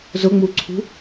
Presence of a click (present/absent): present